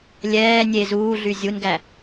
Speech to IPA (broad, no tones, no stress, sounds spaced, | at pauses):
lʲ ɛː nʲ e z uː ɮ y zʲ u n ɡ æ